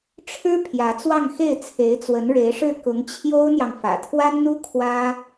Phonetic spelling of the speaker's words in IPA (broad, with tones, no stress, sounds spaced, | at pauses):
ʈ͡ʂʰ ɻ̩˥ pʰ j ä˧˥ t͡s w ɑ˥˧ ŋ x e˥˩ ɪ̯ t͡sʰ e˧˥ ɪ̯ t͡s w ə˧˥ n ɻ e˧˥ ɪ̯ ʂ ɻ̩˥˩ k ʊ˧˥ ŋ t͡ɕʰ j o˥ ʊ̯ n̪ j ɑ˨ ŋ f ä̰˨˩ t̪ʰ w a˥ n n̪ u˥ kʰ w ä˥